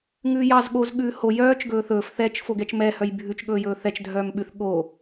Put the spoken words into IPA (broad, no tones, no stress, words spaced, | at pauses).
ŋʉːjɑz ɠoz ɠʉːho jœːt͡ʃ ɡɵːθɵːf θɛt͡ʃ foɡɛt͡ʃmɛ hœjbʱʉt͡ʃ ɠɵːjɵːθɛt͡ʃ dʱœːmɓʉθ ɠo